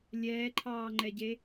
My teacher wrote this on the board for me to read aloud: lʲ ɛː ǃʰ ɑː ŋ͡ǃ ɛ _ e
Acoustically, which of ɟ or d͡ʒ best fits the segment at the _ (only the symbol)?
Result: ɟ